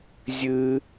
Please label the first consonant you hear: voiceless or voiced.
voiced